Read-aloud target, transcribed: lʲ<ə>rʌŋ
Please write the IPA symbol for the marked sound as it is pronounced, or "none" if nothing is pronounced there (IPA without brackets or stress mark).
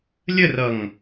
ə